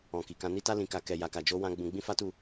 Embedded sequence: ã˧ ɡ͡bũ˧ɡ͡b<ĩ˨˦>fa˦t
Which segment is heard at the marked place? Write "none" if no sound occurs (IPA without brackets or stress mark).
ĩ˦